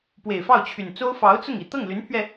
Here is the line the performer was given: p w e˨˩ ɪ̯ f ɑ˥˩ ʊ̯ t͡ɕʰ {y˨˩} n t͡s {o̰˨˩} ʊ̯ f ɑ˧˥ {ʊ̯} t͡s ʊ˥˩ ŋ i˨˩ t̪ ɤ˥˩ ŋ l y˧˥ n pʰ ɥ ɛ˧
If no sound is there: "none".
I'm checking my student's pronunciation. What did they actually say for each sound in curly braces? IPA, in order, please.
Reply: y˨˩, o˥, ʊ̯

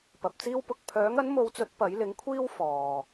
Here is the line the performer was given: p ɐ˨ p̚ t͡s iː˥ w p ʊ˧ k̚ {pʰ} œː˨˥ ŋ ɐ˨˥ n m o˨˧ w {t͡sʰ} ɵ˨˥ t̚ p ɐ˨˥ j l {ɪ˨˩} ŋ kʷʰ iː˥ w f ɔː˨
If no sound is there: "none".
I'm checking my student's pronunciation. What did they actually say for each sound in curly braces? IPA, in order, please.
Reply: pʰ, t͡s, ɪ˨˥

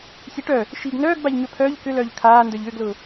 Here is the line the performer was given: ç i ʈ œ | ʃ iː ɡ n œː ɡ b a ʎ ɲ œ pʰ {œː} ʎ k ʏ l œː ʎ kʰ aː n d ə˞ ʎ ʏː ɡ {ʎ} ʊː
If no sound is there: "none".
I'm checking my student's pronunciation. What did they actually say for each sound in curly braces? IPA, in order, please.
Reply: œː, l

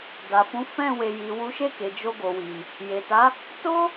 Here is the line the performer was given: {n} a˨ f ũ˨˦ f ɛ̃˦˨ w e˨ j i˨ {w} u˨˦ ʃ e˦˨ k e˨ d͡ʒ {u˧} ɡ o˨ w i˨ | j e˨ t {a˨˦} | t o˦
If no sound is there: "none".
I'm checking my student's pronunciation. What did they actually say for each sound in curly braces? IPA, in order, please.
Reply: d, w, o˧, a˨˦

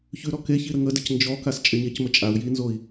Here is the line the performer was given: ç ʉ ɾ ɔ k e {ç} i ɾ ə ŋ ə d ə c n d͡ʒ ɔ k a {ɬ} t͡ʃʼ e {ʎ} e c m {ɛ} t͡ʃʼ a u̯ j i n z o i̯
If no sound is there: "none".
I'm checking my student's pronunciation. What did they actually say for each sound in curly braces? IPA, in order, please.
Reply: ç, s, ɲ, ə

